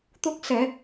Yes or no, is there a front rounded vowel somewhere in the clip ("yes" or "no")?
no